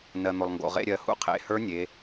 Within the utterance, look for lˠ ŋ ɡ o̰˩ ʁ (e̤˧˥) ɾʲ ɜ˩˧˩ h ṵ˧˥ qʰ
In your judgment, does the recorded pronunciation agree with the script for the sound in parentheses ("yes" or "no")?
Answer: no